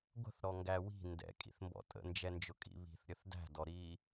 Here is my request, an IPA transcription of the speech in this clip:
ɡʷə̤θɾɔŋɡæ wi̤ ndɛ̰kʼḭθmbɔ̰ tʼə̰nd͡ʒɛnd͡ʒʊkʼḭ βi̤θɾʲəθ dæ̤dɔɾiː

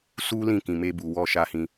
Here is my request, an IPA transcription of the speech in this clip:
su˦ lĩ˦˨kĩ˨me˧ bu˨ wɔ˧ʃa˧hĩ˧

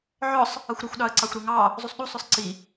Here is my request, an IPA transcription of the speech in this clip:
ʕɔsˤ | ʌxʷɾʌxʷɗɑə̯ǀɑxʷ ɾuŋɑ | zˤusˤɗusˤʊsˤ ǀi

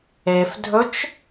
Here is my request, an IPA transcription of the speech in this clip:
efdʱɵt͡ʃ

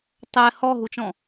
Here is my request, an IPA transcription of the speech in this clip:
tˤɛ hɔɦut͡ʃɔ̃

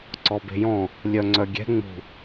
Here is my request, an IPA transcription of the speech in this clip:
ǀɔbe̤jɔ̃ | lʲœŋ͡ǀœɡʲɛ̤ ŋ͡mṳ

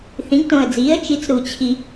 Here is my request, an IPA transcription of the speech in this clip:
θĩ˩˥ɡtõ˨˩ə̯d͡ziː˩˥ə̯ t͡ʃi˩˥t͡sɾu˨˩t͡ɕʰi˨˩

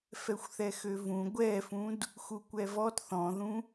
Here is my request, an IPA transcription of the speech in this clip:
fɛxʷθɛxøvũ ɡʷɛfũd | xukʷɛvɔt θɔ̃ðũ

